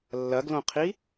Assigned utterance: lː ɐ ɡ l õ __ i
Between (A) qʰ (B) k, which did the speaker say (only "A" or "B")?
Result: A